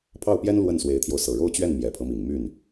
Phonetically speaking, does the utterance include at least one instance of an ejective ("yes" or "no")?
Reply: no